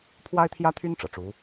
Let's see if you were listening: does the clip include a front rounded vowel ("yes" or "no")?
yes